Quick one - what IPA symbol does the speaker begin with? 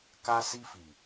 k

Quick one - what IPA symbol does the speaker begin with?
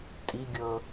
tʼ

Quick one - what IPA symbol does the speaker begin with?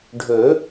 ɖʱ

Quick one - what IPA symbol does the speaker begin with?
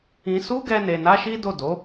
ĩ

